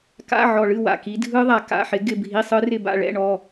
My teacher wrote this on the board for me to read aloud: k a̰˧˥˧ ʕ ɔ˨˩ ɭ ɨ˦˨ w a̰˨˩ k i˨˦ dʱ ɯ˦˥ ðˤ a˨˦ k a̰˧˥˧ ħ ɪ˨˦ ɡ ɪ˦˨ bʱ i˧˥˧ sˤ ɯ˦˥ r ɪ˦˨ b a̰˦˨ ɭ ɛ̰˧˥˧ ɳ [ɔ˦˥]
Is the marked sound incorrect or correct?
incorrect